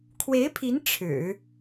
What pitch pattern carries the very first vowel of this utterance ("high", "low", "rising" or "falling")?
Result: rising